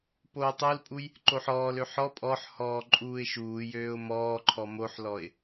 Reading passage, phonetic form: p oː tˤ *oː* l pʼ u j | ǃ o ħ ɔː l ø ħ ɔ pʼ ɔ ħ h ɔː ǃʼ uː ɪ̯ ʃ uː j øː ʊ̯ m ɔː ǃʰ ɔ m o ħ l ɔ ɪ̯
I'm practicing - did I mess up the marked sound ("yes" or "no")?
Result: yes